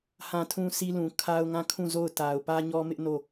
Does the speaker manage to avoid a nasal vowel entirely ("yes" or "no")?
no